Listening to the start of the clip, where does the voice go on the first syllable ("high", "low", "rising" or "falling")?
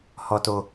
low